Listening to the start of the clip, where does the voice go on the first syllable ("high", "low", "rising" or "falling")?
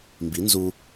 rising